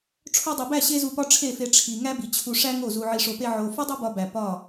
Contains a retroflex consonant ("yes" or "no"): yes